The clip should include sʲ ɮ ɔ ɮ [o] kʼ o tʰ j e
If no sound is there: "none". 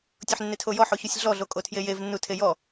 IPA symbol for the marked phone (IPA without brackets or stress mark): o